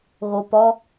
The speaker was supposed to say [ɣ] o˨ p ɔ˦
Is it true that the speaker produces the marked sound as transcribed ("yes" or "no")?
yes